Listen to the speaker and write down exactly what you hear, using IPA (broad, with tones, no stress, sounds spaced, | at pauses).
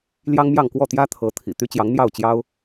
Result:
l j ɑ˥ ŋ m j ɑ˥˧ ŋ k w ɔ˥˩ t̪ j ä˥ t̪ʰ ɤ˧˥ t̪ʰ ḭ˨˩ t̪ y˥ t͡ɕ j ɑ˧˥ ŋ n̪ j ɑ˥˩ ʊ̯ t͡ɕ j ɑ˥ ʊ̯